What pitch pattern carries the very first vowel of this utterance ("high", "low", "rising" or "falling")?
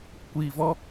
low